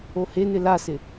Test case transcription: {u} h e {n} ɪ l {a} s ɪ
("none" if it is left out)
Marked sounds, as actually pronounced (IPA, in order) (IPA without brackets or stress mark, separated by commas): o, n, a